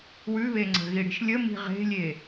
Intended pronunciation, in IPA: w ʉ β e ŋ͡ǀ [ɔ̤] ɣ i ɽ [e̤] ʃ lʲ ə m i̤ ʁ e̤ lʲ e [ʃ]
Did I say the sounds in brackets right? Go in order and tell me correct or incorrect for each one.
incorrect, incorrect, incorrect

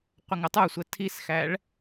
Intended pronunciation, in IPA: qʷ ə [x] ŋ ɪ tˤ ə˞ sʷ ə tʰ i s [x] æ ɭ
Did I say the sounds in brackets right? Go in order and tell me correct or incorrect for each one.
incorrect, correct

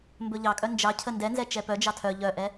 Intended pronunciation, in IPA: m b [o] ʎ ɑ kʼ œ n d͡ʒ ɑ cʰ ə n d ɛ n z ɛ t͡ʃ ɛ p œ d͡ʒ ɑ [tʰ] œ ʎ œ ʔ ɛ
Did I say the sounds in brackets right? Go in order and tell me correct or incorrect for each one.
incorrect, correct

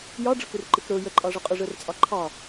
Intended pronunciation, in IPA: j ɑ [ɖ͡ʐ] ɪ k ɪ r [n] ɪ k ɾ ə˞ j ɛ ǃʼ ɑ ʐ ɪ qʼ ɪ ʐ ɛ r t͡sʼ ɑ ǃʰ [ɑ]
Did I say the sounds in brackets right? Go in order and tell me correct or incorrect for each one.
correct, incorrect, correct

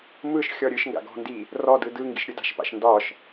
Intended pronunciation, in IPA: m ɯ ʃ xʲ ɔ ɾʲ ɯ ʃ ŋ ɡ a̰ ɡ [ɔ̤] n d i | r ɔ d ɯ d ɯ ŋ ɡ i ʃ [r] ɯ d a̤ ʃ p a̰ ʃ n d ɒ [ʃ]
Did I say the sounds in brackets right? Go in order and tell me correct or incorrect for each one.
correct, incorrect, correct

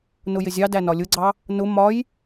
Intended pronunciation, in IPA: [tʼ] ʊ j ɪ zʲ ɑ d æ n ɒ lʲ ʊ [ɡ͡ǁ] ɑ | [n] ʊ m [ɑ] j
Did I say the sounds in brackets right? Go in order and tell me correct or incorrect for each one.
incorrect, incorrect, correct, incorrect

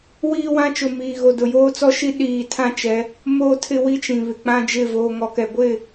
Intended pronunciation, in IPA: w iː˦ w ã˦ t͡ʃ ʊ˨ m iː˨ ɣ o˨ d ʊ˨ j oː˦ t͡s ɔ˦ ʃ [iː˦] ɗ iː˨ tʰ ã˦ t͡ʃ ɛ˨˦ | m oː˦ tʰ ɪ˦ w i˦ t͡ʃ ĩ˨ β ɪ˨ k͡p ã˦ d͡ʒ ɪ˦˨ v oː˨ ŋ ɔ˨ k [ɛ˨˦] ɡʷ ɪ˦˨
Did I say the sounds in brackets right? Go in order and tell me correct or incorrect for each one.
incorrect, incorrect

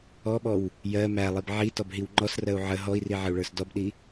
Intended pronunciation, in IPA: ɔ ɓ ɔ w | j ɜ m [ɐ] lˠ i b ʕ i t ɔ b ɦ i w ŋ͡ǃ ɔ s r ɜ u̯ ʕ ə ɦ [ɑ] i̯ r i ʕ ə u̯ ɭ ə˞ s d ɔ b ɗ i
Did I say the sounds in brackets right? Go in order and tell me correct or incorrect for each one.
incorrect, incorrect

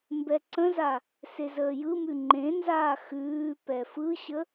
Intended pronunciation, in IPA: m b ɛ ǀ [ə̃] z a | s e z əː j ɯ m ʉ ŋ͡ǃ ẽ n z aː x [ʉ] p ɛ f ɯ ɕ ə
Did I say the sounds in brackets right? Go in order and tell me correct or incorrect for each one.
correct, incorrect

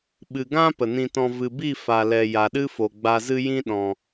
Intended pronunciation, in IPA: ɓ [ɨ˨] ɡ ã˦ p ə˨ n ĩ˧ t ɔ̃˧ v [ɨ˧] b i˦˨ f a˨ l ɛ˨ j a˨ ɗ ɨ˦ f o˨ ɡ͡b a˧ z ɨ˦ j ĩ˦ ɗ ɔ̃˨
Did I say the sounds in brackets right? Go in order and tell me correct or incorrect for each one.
correct, incorrect

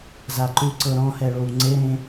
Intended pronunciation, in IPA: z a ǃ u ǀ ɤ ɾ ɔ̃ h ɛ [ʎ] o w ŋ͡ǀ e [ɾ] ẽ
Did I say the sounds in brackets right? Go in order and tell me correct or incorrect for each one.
incorrect, correct

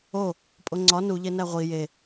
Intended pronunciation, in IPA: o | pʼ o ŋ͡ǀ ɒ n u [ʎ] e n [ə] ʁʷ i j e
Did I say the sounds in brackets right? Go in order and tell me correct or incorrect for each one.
correct, incorrect

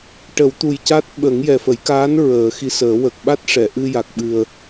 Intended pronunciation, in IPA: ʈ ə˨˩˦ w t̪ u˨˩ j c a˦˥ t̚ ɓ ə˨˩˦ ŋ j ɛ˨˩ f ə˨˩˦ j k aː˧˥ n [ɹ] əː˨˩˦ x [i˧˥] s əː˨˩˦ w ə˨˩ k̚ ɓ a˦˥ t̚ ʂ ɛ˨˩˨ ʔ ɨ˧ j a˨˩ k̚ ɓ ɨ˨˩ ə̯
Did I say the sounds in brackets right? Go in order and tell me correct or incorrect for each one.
correct, correct

